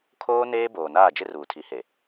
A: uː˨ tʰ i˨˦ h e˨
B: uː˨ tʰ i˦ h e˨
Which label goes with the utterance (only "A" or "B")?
A